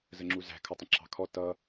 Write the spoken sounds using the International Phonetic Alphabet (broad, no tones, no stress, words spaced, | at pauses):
zəŋ͡ǁuzæ̤ kʰʌtˤə̃ǁʰɑ̤kʰɔ tʌ